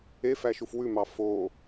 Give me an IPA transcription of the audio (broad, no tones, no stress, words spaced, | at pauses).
efæʃuf wʉmɑ fo